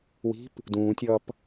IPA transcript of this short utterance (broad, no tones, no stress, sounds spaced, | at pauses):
w i̤ p | d ũː tʲ ʌː p